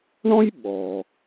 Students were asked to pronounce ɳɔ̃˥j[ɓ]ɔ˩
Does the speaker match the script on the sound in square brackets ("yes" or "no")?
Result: yes